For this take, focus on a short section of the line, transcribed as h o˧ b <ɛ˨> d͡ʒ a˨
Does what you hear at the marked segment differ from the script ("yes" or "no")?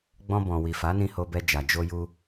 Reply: yes